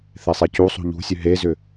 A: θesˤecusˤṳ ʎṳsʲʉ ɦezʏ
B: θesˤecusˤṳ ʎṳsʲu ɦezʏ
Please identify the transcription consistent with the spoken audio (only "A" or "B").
A